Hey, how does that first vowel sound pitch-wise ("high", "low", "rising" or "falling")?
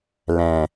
low